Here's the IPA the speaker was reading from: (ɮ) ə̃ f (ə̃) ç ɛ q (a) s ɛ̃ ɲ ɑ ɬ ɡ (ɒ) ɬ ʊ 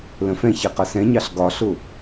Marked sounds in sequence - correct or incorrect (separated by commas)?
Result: incorrect, incorrect, incorrect, correct